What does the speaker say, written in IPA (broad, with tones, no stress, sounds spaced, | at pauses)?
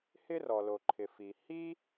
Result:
h ɪ˥ r ɔ˩ l o˩ ǃʰ ɪ˩ f i˩ h i˥